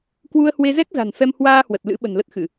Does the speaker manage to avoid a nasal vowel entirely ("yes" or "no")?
yes